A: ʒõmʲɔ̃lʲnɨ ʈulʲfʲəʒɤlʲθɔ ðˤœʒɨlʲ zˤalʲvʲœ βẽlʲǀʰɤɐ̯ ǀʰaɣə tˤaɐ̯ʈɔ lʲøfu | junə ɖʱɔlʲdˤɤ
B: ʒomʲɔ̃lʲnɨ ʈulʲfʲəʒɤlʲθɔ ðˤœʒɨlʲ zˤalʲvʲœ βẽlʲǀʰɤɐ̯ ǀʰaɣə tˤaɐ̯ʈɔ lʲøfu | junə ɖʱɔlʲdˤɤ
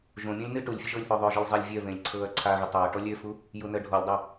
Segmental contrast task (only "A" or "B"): A